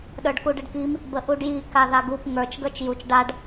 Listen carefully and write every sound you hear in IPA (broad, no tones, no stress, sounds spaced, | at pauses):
ɗ ə˞ ɖ k u ɖ ə ɖ k i m | b ə ʔ u ɖ j i k a ð a ɡ u p ŋ ə˞ t͡ʃ ɡ ə˞ t͡ʃ j u t͡ʃ ɖ a ɖ